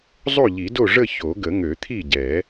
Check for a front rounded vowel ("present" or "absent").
present